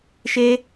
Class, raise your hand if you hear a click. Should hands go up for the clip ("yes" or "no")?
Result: no